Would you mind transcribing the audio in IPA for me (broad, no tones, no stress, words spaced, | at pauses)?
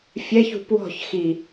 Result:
fʲɛç ṳpwɔ̤ç xi